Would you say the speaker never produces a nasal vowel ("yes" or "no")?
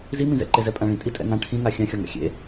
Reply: no